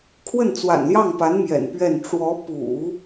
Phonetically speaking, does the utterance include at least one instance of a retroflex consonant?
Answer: yes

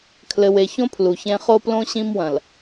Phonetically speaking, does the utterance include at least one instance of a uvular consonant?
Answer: yes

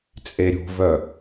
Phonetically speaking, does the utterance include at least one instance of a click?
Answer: no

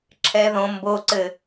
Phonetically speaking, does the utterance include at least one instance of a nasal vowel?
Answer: yes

